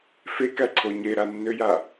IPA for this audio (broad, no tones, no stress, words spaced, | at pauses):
fekæǀʰo ɲeɾanːøja